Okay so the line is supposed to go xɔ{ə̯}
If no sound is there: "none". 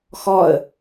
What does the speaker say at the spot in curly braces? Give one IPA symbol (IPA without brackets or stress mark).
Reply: ə̯